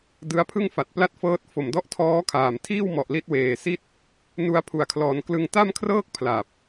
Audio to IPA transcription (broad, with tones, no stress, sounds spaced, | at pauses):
d ɯ˦˥ a̯ pʰ ɯ˥˩ ŋ f a˨˩ t̚ p l a˥˩ t̚ f ɤː˦˥ t̚ f o˨˩ m d ɔ˦˥ ʔ tʰ ɔː˦˥ kʰ aː˨˩ m tʰ iː˥˩ w m ɔ˨˩ ʔ l i˦˥ t̚ w eː˨˩ s i˥˩ t̚ | n u˧ a̯ pʰ u˨˩ a̯ kʰ l ɔː˩˦ n k l ɯ˧ ŋ t a˥˩ m kʰ r ɤː˥˩ k̚ pʰ l a˨˩ p̚